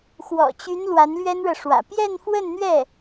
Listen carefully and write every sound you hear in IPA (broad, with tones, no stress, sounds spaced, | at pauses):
x w ɔ̰˨˩ t͡ɕ y˧˥ n l w a˧˥ n l ɥ ɛ˥ n ɻ ɤ˨ ʂ w ä̰˨˩ p j ɛ˥˧ n f w ə˥˧ n n̪ ɥ ɛ˥˩